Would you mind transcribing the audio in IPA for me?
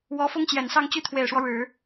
w ɔ˧˥ f ʊ˥ ŋ t͡ɕ j ɛ˨˩ n s ɑ˥˧ ŋ t͡ɕ y˥˩ t̪ʰ w e˨˩ ɪ̯ ʂ w ɔ˦ ɻ ɻ̩˨˩˦

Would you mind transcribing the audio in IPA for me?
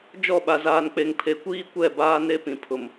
d͡ʒ ɔ˦˨ ɓ a˨ z aː˨ n k͡p e˨ ŋ pʰ e˨ kʷ iː˦ kʷ ɛ˦˨ b aː˦ n e˦ p ĩ˨ pʰ ʊ˨ m

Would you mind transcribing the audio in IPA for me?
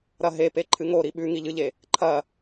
ɾ ɐ ɦ e p e ǃʰ ɨ ŋ o ɾ i ɓ ʉ ŋ i ʎ ɨ ʎ e | ǃʰ ɐ

